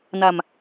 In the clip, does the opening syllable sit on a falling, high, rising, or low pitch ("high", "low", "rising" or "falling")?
low